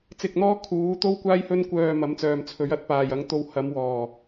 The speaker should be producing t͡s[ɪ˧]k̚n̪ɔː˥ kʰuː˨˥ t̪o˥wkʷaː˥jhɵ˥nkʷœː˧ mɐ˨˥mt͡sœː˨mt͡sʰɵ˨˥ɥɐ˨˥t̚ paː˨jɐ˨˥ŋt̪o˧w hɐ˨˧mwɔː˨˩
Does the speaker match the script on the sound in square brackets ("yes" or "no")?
yes